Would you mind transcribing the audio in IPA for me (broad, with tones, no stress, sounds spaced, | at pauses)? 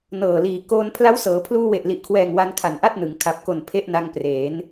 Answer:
n ɤː˨˩ l iː˨˩ k oː˧ n pʰ l a˦˥ w s ɤː˩˦ pʰ l uː˧ w e˨˩ ʔ l i˨˩ ʔ kʰ w ɛː˨˩ ŋ w a˧ n kʰ a˨˩ n ʔ a˥˩ t̚ n ɯ˩˦ ŋ kʰ a˨˩ p̚ k o˨˩ n pʰ e˥˩ ʔ n a˧ ŋ p r eː˩˦ n